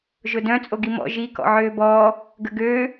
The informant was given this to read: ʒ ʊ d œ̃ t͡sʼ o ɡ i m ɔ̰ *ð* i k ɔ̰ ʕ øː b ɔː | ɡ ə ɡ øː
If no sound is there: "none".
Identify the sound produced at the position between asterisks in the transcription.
ʒ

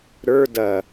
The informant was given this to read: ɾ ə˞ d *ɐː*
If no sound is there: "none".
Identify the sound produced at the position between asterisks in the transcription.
ɐ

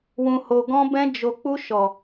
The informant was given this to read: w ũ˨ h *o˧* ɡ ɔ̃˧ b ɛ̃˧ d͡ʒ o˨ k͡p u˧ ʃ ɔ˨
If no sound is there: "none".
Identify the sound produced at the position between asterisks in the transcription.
o˨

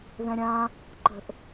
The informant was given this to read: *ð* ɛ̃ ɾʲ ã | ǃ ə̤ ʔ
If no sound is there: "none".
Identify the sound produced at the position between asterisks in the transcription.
ð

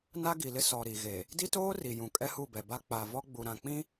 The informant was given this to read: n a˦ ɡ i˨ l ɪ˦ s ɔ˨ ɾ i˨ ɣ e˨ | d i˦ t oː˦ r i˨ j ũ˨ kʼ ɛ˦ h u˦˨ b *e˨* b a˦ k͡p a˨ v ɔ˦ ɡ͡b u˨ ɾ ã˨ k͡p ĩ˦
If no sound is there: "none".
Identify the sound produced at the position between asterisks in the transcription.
ɛ˨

